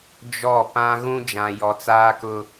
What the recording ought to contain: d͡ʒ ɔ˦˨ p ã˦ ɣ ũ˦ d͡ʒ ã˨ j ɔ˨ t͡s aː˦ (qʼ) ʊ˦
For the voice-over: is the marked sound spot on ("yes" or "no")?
no